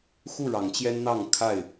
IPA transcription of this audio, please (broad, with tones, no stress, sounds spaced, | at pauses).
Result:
x u˥˨ ɻ ɑ˨˦ ŋ t͡ɕ j ɛ˦ n n̪ ɑ˥˨ ŋ kʰ a˥˨ ɪ̯